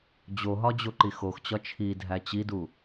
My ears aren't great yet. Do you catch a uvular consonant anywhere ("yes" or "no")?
no